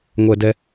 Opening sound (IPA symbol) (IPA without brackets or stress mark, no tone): ŋʷ